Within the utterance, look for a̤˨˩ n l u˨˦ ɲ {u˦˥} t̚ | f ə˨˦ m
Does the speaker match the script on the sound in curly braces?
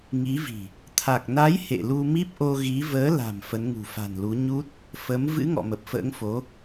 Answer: yes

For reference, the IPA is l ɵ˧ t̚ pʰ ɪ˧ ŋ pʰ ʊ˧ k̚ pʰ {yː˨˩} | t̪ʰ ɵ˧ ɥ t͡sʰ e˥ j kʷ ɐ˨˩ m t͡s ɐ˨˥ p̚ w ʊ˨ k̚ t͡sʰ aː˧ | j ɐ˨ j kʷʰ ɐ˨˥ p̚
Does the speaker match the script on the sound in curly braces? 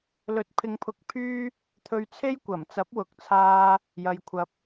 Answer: no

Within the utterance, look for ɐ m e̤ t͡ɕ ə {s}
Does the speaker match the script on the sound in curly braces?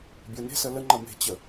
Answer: no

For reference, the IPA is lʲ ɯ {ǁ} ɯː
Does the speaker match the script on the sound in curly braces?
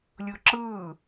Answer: yes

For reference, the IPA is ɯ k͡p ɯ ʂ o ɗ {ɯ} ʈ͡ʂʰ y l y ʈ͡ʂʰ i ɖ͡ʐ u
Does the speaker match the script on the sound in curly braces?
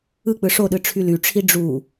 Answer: yes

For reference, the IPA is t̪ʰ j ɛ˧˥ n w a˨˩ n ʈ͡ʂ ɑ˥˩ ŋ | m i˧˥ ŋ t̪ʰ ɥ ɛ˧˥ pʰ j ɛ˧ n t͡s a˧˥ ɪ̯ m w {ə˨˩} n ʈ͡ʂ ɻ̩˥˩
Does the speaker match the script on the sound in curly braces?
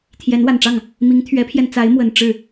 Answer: yes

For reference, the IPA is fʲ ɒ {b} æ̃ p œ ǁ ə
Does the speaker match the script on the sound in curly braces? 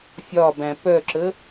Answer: yes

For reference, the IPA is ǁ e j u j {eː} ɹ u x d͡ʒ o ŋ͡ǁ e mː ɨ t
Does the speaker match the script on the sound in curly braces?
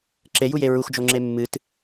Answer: no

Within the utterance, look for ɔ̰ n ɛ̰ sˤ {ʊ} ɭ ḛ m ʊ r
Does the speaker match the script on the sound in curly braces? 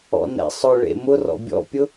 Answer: yes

